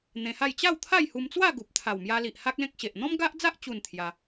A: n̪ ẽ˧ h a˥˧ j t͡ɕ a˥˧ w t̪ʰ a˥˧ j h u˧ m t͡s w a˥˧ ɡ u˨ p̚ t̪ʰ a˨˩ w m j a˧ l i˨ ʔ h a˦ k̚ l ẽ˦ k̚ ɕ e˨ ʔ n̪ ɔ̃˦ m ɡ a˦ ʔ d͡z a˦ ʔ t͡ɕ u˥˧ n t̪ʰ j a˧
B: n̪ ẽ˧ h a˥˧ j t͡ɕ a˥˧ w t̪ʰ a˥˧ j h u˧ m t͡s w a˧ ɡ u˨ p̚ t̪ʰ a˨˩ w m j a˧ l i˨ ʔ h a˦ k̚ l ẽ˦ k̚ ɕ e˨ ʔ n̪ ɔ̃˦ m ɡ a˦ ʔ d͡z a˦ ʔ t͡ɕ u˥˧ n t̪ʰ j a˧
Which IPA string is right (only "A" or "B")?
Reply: A